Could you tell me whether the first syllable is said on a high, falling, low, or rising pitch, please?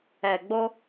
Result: low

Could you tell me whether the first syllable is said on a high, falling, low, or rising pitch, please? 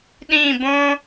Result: falling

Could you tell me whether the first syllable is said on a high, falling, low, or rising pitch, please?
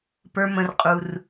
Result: high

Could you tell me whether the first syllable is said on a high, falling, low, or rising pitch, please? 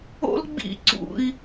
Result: high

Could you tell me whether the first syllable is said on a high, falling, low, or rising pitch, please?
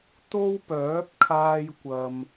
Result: high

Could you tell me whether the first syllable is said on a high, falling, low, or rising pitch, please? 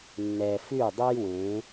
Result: low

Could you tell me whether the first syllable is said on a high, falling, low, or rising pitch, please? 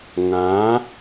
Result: rising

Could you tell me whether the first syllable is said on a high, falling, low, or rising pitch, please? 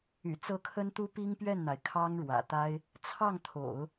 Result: low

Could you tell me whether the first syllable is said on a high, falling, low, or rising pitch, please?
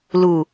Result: low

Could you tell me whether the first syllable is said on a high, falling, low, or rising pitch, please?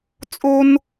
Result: high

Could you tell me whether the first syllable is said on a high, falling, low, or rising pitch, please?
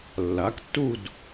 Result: rising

